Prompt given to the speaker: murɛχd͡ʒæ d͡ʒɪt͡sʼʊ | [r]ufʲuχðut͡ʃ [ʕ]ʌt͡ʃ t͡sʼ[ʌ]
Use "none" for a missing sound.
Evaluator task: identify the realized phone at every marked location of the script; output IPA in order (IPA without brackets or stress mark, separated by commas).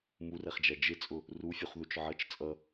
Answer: r, ʕ, ʌ